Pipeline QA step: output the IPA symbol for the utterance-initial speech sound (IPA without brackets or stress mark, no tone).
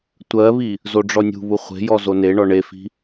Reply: tʷ